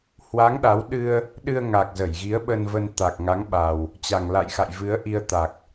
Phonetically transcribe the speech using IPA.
h w a˨˦ ŋ ɗ a˨˦ w ɗ ɨ˧ ə̯ | ɗ ɨ˧ ə̯ ŋ a˨˩ k̚ z ə˧˩ j ɣ i˨˦ ə̯ ɓ ə˧ n v ə˧ n t̪ a˨˩ k̚ ŋ a˨˦ ŋ ɓ a˨˩ w | t͡ɕ a˨˩ ŋ l a̰˧˨ j x a̰˧˨ j v ɨ˨˦ ə̯ ʔ i˧ ə̯ t̪ a˨˩ k̚

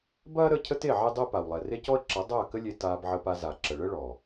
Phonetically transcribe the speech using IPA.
b ɐː˦ ɾ ə˦˨ cʰ ə˦ t e˦˨ ʕ e˦ dˤ ɛ˦ p a˨ w lˠ ɛ˨ r e˦ c ɔ˦ ə̯ ǁ ɐ˨˦ dˤ ɐː˦˨ k ə˦ lʲ e˧ t aː˧ b ʕ ə˧ p a˧ z a˨ ǁ ə˨ ɭ ə˦ ɭ ɔ˨

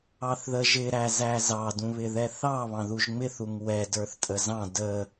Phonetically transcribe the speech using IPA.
ɑ θ ð ə ʒ ɪ ɾ æ z æ z ɑ d ũ β ɪ ð ɛ θ ɑ β ɑ̃ ð u ʒ ŋ͡m ɪ θ u ŋ w ɛ d ə˞ θ tʼ ə z ɑ̃ d ə

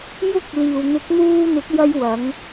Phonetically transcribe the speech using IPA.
j ʊ˥ k̚ l iː˨ w n̪ ɪ˨˥ k̚ n̪ uː˧ n̪ ɪ˨˥ k̚ j ɐ˧ j w ɐ˨˧ ŋ

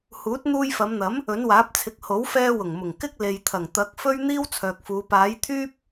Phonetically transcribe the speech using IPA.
h uː˨˥ t̚ n̪ uː˧ j f ɐ˨˧ m n̪ ɐ˨˥ m | ɵ˨˥ n w aː˨˥ p̚ t͡sʰ ɪ˨˥ k̚ h o˨˥ w f ɛː˧ w ʊ˨˩ ŋ m ʊ˨˩ ŋ k ɪ˥ k̚ l e˨ j t̪ʰ ɐ˨˩ ŋ t̪ ɐ˨˥ k̚ f ɵ˥ ɥ n̪ iː˥ w t͡sʰ œː˨ k̚ f uː˨˧ p aː˨˥ j t̪ʰ yː˥ p̚

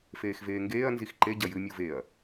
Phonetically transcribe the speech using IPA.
f eː x v eː ŋ ɡ eː ɐ̯ n z i x ǃ e ɟ ɐ j ɨ mʲ u v e ɐ̯

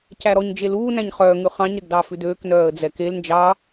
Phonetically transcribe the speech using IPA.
c æ ɾ ɔ ɲ d͡ʒ e l uː n æ̃ ɲ χ œː ŋ ʉ χ ɑ̃ ɲ ɾ ɛ ɡ d ɑ f ʉ d øː k n œː ə̯ d͡z ɛ k e l n d͡ʒ ɑ

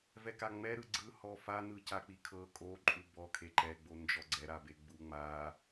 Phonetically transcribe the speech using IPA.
v ɛ k a ŋ͡m ɛ ɾ ɯ ɡ͡ǀ ɯ h ɔ f a n ɯ c a k͡p i kʰ ɤ kʼ o ǃʼ u b ɔ kʰ e ǃ ɛ ɡ͡b o n d͡ʒ ɔ ɡ͡ǀ ɛ ɾ a b e ɡ͡b u ŋ͡m a

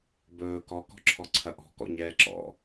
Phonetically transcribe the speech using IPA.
b ɵː k ɔ k ɔ̤ ǁʰ ɔ ǀʰ ɐ ʔ ɔ̤ k ɔ̰ ɲ ɛː ǁ ɔ̰

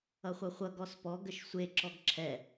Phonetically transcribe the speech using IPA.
ʌ χʷ ʌ χʷ ʌ ɡ ɔ s p ɔ ɡ ə ʃ sʷ e ǁ ɔ ɡ ǁʰ ɛ

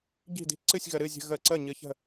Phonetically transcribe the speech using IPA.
ɟ i̤˥˨ d i̤˥˨ ǀ ɨ˥˨ sʲ ɣ ə˧ ɾ ɨ˥˨ zʲ ə̤˧ ɣ ə˥˨ ǀ ə˥˨ ɲ ɨ˧ ç ə̤˥˨

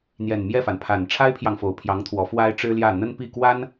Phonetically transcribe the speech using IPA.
n̪ j ɛ˨˩ n m j ɛ˥˩ f a˩ n pʰ a˨˩ n ʈ͡ʂʰ a˥ ɪ̯ pʰ j ɑ˨ ŋ f o˨˩ ʊ̯ pʰ j ɑ˧˥ ŋ t̪ʰ w ɔ˧˥ f w a˥ ɪ̯ ʈ͡ʂ ɻ̩˥ l j ä˥˩ n̪ ə˥ n p i˥˩ k w a˥ n

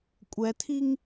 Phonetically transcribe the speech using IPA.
kʷʼ ɛ tʰ i ŋ

